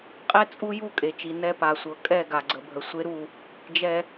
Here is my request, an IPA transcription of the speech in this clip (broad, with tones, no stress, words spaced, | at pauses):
qʼɛ˦t͡sʼu˦ju˦ kʼe˨t͡ʃi˨ nɛ˦pa˨sʷɤ˨ kʼɛ˦˨ ɡa˨ɡ͡ǀə˨bʱə˨ sʷe˦ɾu˦˨ | d͡ʒɛ˦